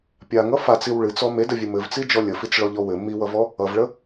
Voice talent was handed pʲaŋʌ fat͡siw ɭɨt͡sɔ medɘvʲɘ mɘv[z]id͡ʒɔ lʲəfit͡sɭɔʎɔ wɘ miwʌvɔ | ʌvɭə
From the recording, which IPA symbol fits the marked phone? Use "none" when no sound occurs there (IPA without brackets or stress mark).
t͡s